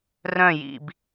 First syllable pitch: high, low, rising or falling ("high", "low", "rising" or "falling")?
falling